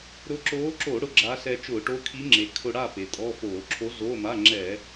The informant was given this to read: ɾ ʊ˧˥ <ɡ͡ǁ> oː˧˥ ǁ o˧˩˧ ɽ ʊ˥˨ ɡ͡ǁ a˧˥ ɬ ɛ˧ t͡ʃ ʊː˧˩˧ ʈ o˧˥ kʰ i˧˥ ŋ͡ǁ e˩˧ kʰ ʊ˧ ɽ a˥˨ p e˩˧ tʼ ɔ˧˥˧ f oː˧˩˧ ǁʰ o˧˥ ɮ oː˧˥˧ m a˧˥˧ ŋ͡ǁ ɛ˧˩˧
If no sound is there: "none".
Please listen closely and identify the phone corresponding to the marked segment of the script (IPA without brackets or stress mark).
ǁ